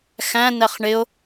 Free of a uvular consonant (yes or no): no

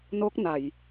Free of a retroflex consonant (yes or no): yes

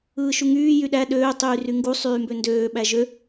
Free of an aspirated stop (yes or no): yes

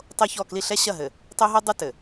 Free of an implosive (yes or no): yes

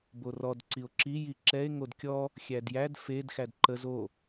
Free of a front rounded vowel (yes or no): yes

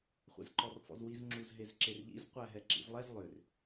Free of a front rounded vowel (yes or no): no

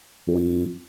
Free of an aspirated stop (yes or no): yes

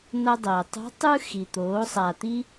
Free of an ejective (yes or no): yes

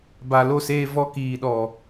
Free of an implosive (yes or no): no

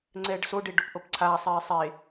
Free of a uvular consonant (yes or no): yes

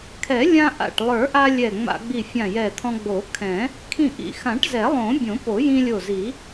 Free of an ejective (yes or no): yes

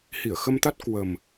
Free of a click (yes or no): yes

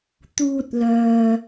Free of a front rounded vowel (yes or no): no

